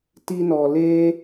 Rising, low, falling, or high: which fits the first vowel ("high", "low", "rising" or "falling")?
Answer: high